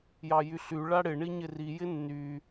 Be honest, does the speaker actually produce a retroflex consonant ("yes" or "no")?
yes